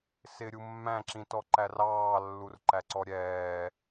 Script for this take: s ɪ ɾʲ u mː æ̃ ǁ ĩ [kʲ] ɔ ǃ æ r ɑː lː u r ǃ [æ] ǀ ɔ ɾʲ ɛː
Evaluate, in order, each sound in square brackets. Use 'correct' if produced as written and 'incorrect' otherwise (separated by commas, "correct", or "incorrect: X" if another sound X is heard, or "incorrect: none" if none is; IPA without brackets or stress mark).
incorrect: t, correct